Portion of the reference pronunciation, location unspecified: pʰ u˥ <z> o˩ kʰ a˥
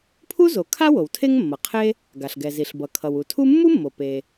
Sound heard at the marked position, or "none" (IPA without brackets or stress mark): z